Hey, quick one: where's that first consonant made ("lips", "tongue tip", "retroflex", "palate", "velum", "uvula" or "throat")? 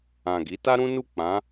velum